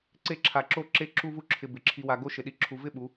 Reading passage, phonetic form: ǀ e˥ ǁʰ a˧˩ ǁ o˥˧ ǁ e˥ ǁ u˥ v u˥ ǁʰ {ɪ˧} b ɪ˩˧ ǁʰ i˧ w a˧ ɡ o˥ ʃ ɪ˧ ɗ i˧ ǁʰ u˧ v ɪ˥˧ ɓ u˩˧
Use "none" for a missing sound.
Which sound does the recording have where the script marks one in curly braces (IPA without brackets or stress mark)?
ɪ˧